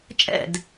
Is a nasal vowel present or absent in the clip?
absent